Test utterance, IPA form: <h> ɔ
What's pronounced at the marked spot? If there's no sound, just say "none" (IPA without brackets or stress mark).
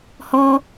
h